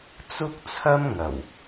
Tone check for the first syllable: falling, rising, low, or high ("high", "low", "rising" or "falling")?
high